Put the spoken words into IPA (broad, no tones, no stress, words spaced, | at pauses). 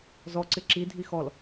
zɔǀɪ ǁidʱi xɔl